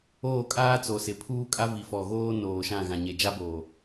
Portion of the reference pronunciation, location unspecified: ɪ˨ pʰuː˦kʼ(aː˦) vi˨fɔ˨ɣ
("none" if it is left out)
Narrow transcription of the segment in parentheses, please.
a˦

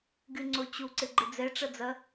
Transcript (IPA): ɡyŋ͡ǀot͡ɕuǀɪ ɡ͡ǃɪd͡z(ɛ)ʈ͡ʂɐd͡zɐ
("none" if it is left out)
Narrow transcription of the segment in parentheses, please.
ɛ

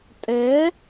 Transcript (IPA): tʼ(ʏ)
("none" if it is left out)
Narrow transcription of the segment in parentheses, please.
ɛ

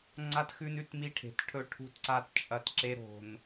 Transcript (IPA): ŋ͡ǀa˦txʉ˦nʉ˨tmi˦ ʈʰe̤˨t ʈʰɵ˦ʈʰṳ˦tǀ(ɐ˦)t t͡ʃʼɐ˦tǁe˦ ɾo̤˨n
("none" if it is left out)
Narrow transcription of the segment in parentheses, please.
a˦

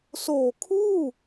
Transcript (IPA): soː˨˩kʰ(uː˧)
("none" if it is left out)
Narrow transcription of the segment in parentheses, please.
uː˥˩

